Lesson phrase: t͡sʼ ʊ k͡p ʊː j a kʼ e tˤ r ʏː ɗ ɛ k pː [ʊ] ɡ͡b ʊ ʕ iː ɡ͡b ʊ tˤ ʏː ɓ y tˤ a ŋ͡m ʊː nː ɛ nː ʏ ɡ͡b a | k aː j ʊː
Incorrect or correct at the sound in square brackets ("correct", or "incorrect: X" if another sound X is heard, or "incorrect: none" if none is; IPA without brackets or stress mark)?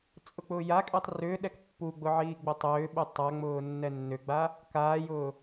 incorrect: u